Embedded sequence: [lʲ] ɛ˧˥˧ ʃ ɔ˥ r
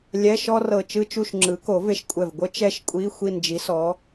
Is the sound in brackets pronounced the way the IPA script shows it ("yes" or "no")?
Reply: yes